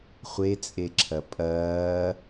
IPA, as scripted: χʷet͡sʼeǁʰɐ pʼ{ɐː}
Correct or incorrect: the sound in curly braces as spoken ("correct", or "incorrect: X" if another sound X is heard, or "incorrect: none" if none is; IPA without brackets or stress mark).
correct